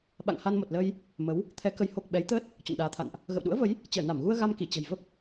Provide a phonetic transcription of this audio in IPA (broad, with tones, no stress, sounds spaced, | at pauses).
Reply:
ɓ a̰˧˨ ŋ h a˧ n m o˨˩ t̚ l əː˧ j | m ə˨˦ w | t̪ʰ ɛ˨˦ k ə˨˦ j h o˨˩ k̚ ɓ ɛ˨˦ j t̪ əː˦˥ t̚ | t͡ɕ o̰˧˨ n ɗ aː˨˦ t̪ʰ a̰˧˨ n ʔ | ɣ ə̰˧˨ w ɗ ṵ˧˥ ə̯ v ə˨˦ j | t͡ɕ əː˧˩ n a˧˩ m ɣ u˧ ə̯ ɣ a˧ m k i˧˩ t͡ɕ ə̤˨˩ j v ə˦˥ p̚